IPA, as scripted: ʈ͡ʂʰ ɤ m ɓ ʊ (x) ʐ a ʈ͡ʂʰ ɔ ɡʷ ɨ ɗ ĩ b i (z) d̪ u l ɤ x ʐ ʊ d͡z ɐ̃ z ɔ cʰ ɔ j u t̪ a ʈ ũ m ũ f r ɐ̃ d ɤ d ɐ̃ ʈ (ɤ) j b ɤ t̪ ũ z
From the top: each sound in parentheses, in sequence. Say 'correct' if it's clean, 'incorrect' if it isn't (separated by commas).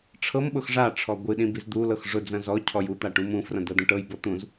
correct, correct, correct